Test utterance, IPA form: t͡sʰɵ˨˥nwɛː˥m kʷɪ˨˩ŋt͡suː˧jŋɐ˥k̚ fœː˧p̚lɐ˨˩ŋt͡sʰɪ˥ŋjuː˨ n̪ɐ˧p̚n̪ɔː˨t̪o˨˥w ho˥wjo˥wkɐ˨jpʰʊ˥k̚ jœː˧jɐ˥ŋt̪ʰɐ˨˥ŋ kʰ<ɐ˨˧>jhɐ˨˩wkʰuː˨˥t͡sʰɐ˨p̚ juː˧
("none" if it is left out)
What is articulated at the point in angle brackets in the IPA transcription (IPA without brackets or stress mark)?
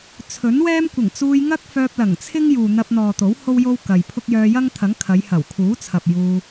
ɐ˨˧